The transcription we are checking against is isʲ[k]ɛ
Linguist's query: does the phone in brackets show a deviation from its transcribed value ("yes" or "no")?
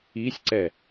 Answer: yes